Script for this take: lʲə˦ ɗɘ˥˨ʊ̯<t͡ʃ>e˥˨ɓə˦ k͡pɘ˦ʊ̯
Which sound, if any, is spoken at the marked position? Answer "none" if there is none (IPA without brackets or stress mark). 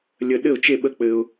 t͡ʃ